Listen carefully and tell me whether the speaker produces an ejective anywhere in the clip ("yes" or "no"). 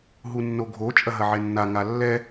yes